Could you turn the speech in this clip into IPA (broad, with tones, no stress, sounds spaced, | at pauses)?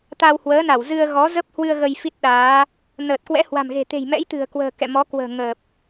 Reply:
t̪ a˧ w h w əː˨˦ n a˧˩ w z ɨ˧ ə̯ ɣ ɔ˨˦ z ə˦˥ p̚ h w ɨ˧ ə̯ ɣ ə˧ j f i˦˥ t̚ ɗ aː˨˦ | n əː˨˩ t̚ k w ɛ̰˧˥ h w a̤˨˩ m ɣ e̤˨˩ t̪ e̤˨˩ j m ɛ̰˧˥ j t̪ ɨ̤˨˩ ə̯ k w ə̤ː˨˩ k ɛ̰˧˨ m ɔ˨˦ k w ə̤ː˨˩ ŋ əː˨˩ p̚